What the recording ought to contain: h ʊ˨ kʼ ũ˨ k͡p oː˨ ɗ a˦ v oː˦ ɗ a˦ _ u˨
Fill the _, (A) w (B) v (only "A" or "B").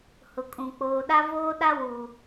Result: A